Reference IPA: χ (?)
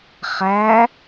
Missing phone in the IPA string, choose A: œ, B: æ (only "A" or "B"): B